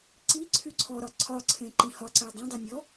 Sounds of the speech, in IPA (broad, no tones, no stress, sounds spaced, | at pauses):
ǀ i ǀʰ y ǀʰ ɔ ɾ ɒ ǀʰ ɒ ǀʰ ẽ ǃ ĩ h ɒ ǀ æ dˤ ẽ dˤ e nʲ ɔ